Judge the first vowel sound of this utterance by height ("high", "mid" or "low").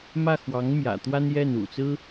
low